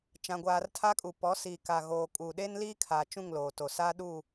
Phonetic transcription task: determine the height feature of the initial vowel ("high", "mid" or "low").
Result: low